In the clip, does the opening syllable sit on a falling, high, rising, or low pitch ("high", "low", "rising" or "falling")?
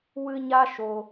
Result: high